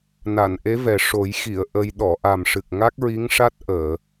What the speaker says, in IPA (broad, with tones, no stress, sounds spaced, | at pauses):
n a˨˩˨ n ʔ e˧˥ v ɛ˨˩ ʂ o˨˩˦ j x i˨˩˨ ə̯ ʔ ə˧ j ɗ ɔ˨˩˨ ʔ a˨˩ m ʂ ɨ˨˩ k̚ ŋ a˦˥ k̚ ɹ i˧˥ ŋ ʂ a˦˥ t̚ ʔ əː˨˩˨